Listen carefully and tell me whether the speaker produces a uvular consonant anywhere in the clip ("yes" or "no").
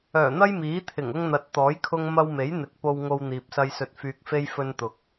no